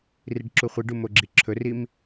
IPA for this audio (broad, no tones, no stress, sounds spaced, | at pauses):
r i ɖ ǁ u χʷ i ɖ u m o ɡ͡ǁ i ǁʰ ɵ r i m